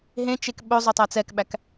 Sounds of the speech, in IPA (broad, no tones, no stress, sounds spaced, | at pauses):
ɦ ẽ t͡ʃ e k ɓ ɵ zˤ ɵ tˤ æ t͡s ɛ k ɓ æ k